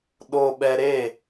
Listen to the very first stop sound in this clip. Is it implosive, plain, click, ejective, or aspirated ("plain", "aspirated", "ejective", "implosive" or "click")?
implosive